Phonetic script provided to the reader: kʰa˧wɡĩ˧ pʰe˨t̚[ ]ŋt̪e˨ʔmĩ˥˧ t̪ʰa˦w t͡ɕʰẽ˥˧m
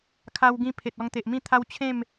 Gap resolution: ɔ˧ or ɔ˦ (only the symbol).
ɔ˧